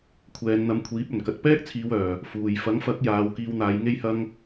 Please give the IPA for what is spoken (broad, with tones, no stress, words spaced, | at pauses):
kʷʰɛː˨˧nn̪ɐ˧m kʷʰiː˨˥p̚ɵ˨˩n kɐ˨t̚pɛː˥k̚t͡sʰiː˨˧w œː˨ | fuː˨j fɐ˨˥ŋfɐ˨˥k̚ jaː˨˧wkiː˧wn̪aː˨˧j ŋe˧jhɐ˧ŋ